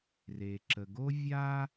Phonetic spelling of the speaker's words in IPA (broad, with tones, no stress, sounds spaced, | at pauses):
r e˩ ǁ ə˩ ɡ o˥ vʲ a˥